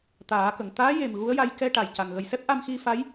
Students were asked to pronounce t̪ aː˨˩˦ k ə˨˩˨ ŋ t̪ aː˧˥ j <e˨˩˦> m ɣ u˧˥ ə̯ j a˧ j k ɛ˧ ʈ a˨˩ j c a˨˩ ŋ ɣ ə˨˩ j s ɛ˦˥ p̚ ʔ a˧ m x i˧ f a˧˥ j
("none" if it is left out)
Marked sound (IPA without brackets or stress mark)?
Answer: e˨˩